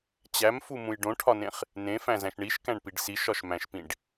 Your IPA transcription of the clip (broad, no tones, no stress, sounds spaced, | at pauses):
t͡ɕ æ m f u m ũ j ɖ õ ʈʰ ɒ n ẽ χ | n ẽ f æ̃ z æ̃ ʃ ɳ i ʃ k æ̃ ɳ p i ɖ s i ʃ ɒ ʃ m æ̃ ʃ p ĩ ɖ